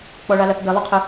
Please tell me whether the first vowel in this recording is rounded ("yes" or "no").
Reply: yes